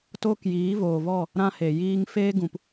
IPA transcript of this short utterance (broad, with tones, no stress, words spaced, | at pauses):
toː˦kjiː˨˦voː˨vɔ˦˨ | ɾã˦he˨jiː˦ŋ feː˦ɡũ˨p